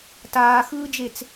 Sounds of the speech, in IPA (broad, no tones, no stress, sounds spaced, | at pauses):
t aː x ɯː d͡ʒ e t͡s